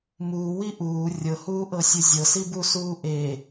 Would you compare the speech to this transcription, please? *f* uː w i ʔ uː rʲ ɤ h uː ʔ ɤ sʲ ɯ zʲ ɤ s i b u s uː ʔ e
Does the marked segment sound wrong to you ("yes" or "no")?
yes